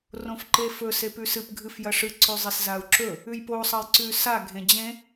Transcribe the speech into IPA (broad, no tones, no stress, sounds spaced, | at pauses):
r õ f ǃ e f ɵ s e p ʉ s ɨ p ɡʱ ɨ f j ɐ ʂ ɨ ǀ ʉ zˤ i s z a u̯ ǁ ɵ | ʉ j p o sˤ ɐ j ǀ ʉ s a ɡʱ ẽ d͡ʑ ẽ